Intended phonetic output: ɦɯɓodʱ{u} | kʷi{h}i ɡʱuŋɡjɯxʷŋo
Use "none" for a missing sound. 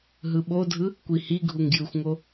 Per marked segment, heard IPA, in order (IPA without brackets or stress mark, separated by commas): ɯ, h